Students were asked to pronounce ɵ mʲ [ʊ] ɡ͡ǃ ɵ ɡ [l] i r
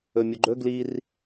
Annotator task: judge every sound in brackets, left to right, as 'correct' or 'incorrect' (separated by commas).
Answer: correct, correct